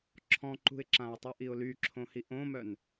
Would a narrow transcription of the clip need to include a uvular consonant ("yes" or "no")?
no